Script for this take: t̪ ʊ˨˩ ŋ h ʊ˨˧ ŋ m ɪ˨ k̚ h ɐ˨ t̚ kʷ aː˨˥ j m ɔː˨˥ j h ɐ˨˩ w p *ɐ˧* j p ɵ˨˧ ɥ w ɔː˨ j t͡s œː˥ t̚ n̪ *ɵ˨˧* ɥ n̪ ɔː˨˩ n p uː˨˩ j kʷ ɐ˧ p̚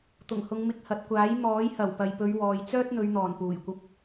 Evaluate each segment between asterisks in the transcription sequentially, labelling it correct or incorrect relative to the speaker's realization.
incorrect: ɐ˨, correct

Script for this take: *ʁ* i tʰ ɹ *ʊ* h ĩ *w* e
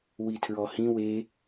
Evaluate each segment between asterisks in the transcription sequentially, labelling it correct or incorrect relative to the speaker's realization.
incorrect: w, incorrect: ɔ, correct

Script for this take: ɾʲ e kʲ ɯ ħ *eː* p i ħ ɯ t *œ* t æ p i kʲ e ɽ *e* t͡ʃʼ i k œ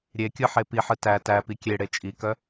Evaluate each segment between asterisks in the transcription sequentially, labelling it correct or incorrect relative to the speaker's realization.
incorrect: e, incorrect: æ, correct

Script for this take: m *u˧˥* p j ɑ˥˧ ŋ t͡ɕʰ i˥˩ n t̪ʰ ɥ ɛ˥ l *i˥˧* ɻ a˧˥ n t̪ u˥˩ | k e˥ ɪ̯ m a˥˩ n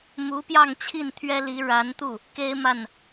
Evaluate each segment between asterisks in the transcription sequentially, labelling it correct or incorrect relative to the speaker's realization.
correct, incorrect: i˧˥

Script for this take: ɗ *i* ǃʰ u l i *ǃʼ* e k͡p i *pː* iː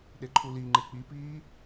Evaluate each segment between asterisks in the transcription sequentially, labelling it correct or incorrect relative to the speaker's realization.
incorrect: e, incorrect: ŋ͡ǃ, incorrect: p

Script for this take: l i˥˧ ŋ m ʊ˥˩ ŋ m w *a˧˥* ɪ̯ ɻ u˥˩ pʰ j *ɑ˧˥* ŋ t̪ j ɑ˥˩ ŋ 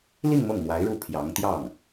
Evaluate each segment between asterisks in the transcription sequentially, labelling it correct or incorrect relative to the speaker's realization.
correct, correct

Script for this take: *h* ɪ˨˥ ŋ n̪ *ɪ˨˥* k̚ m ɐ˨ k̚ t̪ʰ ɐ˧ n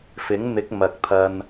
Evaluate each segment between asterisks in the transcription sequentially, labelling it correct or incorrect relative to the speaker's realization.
incorrect: f, correct

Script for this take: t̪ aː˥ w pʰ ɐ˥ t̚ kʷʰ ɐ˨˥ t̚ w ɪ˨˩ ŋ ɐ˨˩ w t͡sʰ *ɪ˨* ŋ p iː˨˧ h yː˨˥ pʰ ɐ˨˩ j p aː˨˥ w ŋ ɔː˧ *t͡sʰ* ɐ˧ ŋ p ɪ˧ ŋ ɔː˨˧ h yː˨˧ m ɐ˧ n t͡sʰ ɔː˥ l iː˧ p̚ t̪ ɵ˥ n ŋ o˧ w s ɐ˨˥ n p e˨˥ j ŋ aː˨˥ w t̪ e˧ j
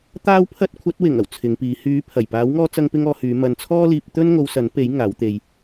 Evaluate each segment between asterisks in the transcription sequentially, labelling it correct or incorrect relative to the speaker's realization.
incorrect: ɪ˨˧, incorrect: t͡s

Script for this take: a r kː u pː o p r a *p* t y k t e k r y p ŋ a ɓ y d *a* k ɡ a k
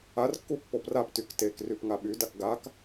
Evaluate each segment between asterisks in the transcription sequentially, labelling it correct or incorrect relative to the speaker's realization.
correct, correct

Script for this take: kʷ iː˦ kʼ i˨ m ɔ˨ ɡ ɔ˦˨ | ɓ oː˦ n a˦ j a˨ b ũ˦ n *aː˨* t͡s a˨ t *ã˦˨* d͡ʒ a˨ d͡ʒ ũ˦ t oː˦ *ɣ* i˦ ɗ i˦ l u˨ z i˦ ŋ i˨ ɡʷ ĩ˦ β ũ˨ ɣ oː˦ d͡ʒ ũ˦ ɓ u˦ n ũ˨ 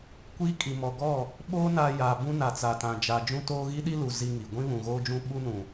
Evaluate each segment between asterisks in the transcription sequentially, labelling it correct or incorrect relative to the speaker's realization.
incorrect: a˨, incorrect: ã˨, correct

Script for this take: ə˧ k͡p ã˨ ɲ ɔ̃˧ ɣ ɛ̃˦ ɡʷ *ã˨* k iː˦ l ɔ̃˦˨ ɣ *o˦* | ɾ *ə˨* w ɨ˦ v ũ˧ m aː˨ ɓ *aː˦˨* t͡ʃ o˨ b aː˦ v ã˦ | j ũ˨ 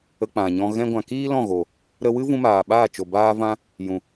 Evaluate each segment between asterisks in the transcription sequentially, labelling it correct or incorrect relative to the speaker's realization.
correct, incorrect: o˨, incorrect: ə˧, correct

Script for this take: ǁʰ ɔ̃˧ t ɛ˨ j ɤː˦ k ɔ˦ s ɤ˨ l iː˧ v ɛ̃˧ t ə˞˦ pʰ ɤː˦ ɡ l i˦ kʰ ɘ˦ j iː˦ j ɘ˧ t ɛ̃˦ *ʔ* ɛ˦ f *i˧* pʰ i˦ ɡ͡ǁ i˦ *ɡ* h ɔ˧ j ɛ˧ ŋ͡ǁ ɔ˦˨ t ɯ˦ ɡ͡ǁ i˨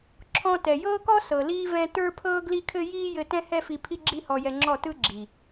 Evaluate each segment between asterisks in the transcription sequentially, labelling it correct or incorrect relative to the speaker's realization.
incorrect: h, correct, incorrect: none

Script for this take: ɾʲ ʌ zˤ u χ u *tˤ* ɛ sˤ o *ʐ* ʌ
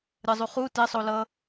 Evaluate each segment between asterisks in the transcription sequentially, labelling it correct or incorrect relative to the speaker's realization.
incorrect: t, incorrect: l

